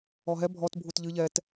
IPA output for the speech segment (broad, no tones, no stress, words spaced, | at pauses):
ɔɦɛ bʱɔt bʱutʎɨ ʎɛt